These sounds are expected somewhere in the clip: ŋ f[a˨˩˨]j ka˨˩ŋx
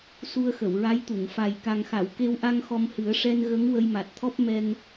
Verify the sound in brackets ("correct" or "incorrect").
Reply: incorrect